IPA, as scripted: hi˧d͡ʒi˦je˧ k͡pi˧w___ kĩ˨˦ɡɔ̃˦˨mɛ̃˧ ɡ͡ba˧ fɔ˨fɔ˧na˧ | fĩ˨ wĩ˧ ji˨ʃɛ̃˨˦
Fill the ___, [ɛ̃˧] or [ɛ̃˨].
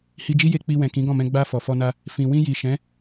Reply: ɛ̃˨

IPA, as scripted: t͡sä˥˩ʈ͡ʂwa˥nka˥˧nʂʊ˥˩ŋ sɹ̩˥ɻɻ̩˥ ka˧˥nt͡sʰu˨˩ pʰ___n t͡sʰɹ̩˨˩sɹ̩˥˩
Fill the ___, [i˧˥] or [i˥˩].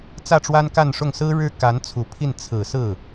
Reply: i˥˩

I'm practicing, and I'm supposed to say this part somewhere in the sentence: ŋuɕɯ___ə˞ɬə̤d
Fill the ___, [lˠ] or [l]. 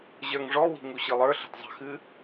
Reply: lˠ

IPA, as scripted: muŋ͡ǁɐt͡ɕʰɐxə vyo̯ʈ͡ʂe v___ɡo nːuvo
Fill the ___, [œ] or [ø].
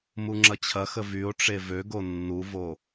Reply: ø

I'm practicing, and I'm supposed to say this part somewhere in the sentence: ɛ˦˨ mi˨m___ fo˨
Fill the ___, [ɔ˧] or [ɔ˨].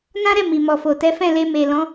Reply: ɔ˨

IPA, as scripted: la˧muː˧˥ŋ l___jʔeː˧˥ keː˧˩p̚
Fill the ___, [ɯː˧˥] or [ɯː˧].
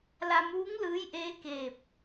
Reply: ɯː˧˥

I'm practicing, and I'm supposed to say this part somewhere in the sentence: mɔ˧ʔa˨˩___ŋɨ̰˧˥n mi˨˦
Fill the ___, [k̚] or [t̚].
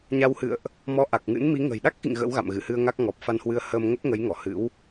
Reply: k̚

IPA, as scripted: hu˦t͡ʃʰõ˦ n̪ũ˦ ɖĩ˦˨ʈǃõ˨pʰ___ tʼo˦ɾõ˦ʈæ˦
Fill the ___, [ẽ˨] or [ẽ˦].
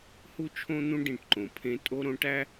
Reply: ẽ˦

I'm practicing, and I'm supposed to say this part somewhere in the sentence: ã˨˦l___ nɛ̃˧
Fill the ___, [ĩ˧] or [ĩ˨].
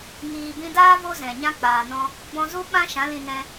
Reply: ĩ˧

